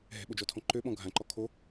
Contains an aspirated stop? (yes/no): yes